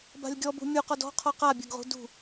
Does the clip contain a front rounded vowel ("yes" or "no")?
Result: no